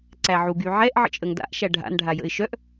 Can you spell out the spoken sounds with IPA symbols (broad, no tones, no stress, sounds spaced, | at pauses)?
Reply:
ǀ æ ʕ u ɡ y ʕ ɛ ʔ ʕ ə̰ t͡ʃʼ ə ŋ d a̰ ʔ ʃ æ ɖʱ a̰ n ɖʱ a j ə̰ ɪ̯ ʃ œ ʔ